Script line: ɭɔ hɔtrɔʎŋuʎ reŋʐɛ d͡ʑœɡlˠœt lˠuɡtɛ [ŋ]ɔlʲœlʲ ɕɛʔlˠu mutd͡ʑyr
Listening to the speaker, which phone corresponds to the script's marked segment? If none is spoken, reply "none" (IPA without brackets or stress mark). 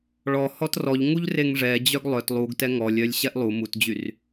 ŋ